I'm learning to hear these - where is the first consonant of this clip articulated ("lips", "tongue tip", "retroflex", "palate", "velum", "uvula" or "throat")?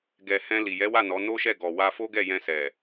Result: velum